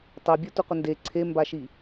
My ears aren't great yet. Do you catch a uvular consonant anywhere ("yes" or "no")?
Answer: yes